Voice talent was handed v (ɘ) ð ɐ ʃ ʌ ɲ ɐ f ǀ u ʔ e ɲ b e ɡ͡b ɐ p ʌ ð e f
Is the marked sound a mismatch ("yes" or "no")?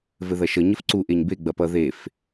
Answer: no